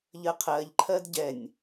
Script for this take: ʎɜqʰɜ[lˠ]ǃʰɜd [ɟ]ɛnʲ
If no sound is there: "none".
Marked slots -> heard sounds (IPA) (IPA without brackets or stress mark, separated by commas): ʎ, ɟ